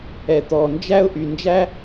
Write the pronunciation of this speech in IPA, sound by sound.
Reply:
ɛ˩ t̪ ɔ˩ n d͡ʒ æ˥ ʊ̯ ʔ y˩ n d͡ʒ æ˥

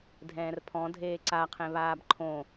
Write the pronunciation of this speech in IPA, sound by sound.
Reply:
dʱ ɛ̃ː r pʰ ɔ̃ dʱ eː ǀ a qʰ ẽ β aː b ǃʰ õ

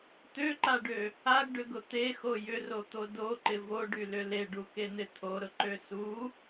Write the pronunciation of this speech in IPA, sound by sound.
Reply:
t̪ ø ǃ a ɖ ø | a ɡ ɖ ʏ ɡ ʊ t̪ e x o j ʏ r o t̪ o d o ǃ ɪ v o ɖ y l ʏ l e ɖ u k e n̪ ɪ t̪ʰ o ɾ ʊ ǃ ø s u

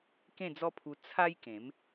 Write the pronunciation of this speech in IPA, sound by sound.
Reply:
k ẽ˥˧ d͡z ɔ˦ pʰ u˧ t͡sʰ a˦ j k ẽ˨˦ m

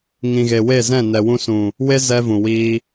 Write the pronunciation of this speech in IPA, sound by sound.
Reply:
ŋ ĩ˨ ɣ e˨ w e˦˨ z ɛ̃˦˨ n ɛ˨ w ũ˧ s ũ˨ | w e˦ z ɛ˧ v ũ˨ w iː˧

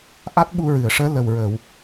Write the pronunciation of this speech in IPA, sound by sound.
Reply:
ʔ a˦˥ t̚ ɓ u˧ ɹ ɨ˨˩˨ ə̯ ʂ əː˧˥ l ə˨˩ w ɹ əː˨˩˨ w

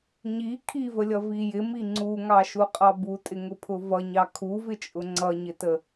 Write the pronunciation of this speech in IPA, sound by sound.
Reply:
ɲ i kʰ i v ə lʲ ʌ v i j ɪ m i ŋ͡ǀ u ŋ ɑ ʃ u qʼ ɑ b u tʼ ɪ ŋ ʊ pʰ ʊ v ʌ ɲ ɑ kʰ u v ɪ t͡ʃʼ ʊ ŋ͡ǀ ʌ ɲ ɪ t ə

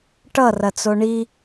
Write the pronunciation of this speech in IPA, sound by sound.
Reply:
ʈ ʌ r ɐ t͡s o ɳ i

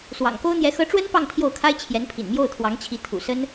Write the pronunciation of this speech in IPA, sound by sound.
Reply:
s w ɑ̰˨˩ ŋ k o˥ ʊ̯ n̪ j ɛ˧˥ x ɤ˧˥ ʈ͡ʂ w ə˥ n p ɑ˥˧ ŋ t̪ʰ j o˥˩ ʊ̯ kʰ a˥ ɪ̯ t͡ɕʰ j ɛ˧˥ n pʰ ḭ˨˩ n m j o˥˩ ʊ̯ t̪ʰ w ɑ˧˥ ŋ t͡ɕʰ i˧˥ t̪ʰ ṵ˨˩ s ə˥ n

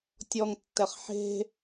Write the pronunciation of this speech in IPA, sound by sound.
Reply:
tʲ ɔ ŋ tː ɛ χ ħ e̤

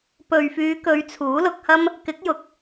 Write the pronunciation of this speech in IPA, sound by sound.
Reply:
p ɵ˨ ɥ f yː˨˧ k ɵ˨˧ ɥ t͡sʰ uː˨˥ l ʊ˧ k̚ h ɐ˥ m | k ɪ˨˥ k̚ j ʊ˨˥ k̚

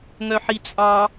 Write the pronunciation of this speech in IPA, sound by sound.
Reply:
ŋ œ ħ i t͡sʼ ɑ

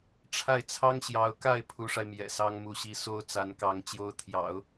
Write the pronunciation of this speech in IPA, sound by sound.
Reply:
ʈ͡ʂʰ a˥˩ ɪ̯ t͡sʰ ɑ˥ ŋ ɕ j ɑ˧˥ ʊ̯ k a˥˩ ɪ̯ pʰ u˧˥ ʂ a˧ ɪ̯ m j ɛ̰˨˩ s ɑ˥ ŋ m u˥˩ ɕ i˥ s o˥ ʊ̯ t͡s a˧˥ n k ɑ˧˥ ŋ t͡ɕ j o˧˥ ʊ̯ t̪ʰ j ɑ̰˨˩˦ ʊ̯

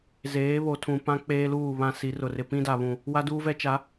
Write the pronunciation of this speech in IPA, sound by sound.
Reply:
z eː˨˦ β o˨ tʰ ũ˨ p ã˦ k͡p eː˦ l uː˦˨ β ã˦ s i˨˦ r ʊ˨ r ɪ˨ p ĩ˦ d a˨ β ũ˨ | w a˦ d uː˦ v ɛ˦ t͡ʃ a˨˦

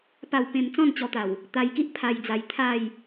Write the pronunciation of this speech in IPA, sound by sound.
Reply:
p a˥˧ w p ẽ˥˧ m t͡s ɔ̃˥˧ n t͡ɕ ɔ˧ t̪ a˨˩ w | t̪ a˧ j k i˦ ʔ pʰ a˧ j d͡z a˧ j t̪ʰ a˥˧ j

